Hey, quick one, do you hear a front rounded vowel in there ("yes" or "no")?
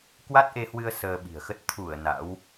no